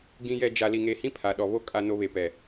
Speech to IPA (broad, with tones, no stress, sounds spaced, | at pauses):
ɡ ĩ˨ j ɛ˨ d͡ʒ a˨ l i˨ ŋ e˨ h ĩ˦ pʰ a˨ ɗ ɔ˨ β o˦ kʼ a˦ n o˦ β e˨ p ɛ˨